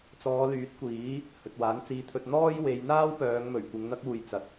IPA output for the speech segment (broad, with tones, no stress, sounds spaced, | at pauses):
t͡s ɔː˨˧ l yː˨˥ t̚ kʷ iː˨˥ | h ɵ˨ t̚ w aː˨˥ n t͡s iː˧ t̪ʰ ɵ˧ t̚ n̪ ɔː˥ j w e˨˧ j n̪ aː˥ w p œː˨˧ ŋ m ɵ˨˩ ɥ kʷ ɪ˨˧ ŋ n̪ ɐ˥ k̚ uː˨ j t͡s ɐ˨ t̚